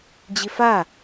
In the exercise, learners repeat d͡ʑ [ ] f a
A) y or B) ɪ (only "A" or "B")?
B